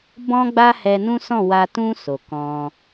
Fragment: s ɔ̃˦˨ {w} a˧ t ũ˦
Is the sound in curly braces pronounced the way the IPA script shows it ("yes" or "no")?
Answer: yes